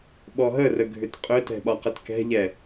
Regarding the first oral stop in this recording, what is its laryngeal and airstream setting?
implosive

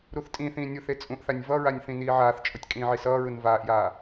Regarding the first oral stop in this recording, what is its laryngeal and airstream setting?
ejective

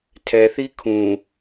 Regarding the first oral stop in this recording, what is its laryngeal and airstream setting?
aspirated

